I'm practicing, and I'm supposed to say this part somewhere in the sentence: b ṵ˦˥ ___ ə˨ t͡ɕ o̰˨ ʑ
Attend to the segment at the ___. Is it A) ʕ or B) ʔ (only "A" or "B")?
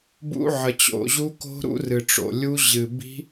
A